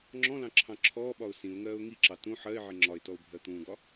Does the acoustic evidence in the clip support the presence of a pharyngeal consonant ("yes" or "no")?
yes